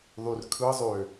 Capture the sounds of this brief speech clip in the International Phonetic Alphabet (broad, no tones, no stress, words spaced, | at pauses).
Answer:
ðˤyrkʰɯzˤø